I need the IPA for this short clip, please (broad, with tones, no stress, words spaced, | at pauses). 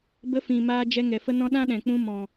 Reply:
bə˧fĩ˨ maː˧d͡ʒɛ˧ ŋɛ˨fə˧nɔ̃˧ ɗã˦ɗɛ̃˨k͡pũ˧ mɔ̃˨